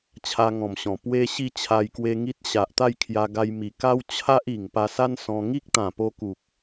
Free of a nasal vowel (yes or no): no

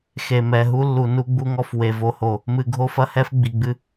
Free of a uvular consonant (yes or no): yes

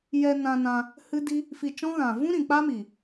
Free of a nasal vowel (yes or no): no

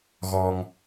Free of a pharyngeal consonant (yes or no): yes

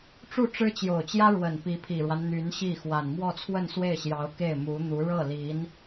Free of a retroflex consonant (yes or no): no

